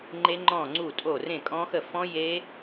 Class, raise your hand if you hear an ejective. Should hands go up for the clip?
yes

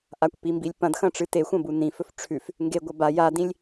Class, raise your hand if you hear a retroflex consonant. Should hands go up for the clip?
yes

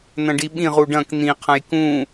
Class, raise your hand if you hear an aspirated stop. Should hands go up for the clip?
yes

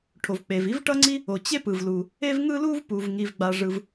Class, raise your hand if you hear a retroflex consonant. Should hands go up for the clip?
yes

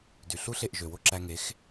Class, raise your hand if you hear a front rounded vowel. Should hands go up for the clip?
yes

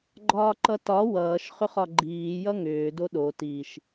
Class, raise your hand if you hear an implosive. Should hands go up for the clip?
yes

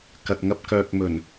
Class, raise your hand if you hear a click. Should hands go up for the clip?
no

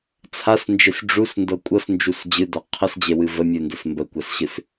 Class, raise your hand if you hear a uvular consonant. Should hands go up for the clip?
yes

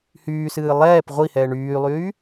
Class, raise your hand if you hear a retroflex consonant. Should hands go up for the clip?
yes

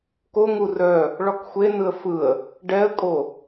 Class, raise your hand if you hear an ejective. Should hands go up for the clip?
yes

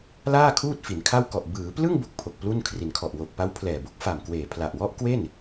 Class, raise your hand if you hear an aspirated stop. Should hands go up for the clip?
yes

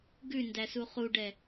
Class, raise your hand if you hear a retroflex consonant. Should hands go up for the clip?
yes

